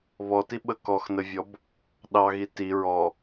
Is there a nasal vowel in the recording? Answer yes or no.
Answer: no